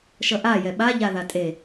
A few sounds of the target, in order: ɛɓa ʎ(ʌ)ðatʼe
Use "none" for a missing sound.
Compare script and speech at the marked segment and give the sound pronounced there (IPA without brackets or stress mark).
a